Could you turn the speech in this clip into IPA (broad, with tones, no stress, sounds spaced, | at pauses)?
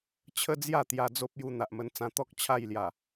t͡ɕʰ ə˦ d͡z j a˥˧ t̪ j a˧ d͡z o˦ p̚ j u˧ n̪ a˨ ʔ m ə˧ n t͡s ã˧ t̪ ɔ˦ k̚ t͡ɕʰ a˥˧ j l j a˨˩